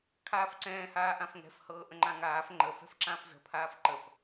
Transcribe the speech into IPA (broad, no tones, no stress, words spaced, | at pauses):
kʰaːfǀɛ̃ːhaː ʔãfŋɛ̤fhɤː ʔə̃ŋ͡ǃãŋaːf ŋ͡ǃə fɛ̤fǁãfzə̤pʰaːf ǃəf